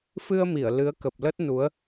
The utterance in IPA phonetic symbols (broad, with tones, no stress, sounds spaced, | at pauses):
f ɨ˧ ə̯ m i˧˩ ə̯ l ɨ˨˦ ə̯ k ə˨˩ p̚ l ə˦˥ t̚ n u˨˦ ə̯